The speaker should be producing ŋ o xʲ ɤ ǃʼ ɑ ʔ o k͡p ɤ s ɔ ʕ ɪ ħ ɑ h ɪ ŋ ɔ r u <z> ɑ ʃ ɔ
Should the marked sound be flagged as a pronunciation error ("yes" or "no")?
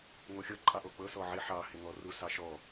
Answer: yes